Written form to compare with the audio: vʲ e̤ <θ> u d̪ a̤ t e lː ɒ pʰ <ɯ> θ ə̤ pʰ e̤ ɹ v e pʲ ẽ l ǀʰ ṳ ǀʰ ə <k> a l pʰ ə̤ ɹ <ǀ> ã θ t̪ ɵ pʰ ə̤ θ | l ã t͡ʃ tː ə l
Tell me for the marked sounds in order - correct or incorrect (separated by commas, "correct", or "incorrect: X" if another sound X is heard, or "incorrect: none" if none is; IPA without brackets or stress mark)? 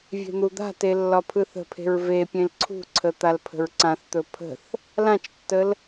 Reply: incorrect: n̪, correct, incorrect: t̪, correct